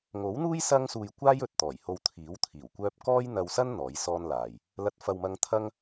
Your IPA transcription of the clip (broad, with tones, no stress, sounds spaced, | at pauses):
ŋ o˨˥ w n̪ uː˥ j s ɐ˥ ŋ s uː˧ j kʷ aː˥ j ɵ˨ t̚ t̪ ɔː˨˩ j h o˧ w t̪ʰ iː˨˥ w t̪ʰ iː˨˩ w kʷ œː˥ p̚ k ɔː˥ j n̪ ɐ˧ w s ɐ˥ n n̪ ɔː˨˥ j s ɔː˥ n l aː˨ j | l ɐ˨˥ t̚ f ɐ˨ w m ɐ˧ ŋ t̪ʰ ɐ˥ ŋ